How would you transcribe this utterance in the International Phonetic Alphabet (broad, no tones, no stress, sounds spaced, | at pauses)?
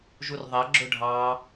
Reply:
ʒ u r ðˤ ɐ ɡ͡ǁ ʊ ɖʱ ɑ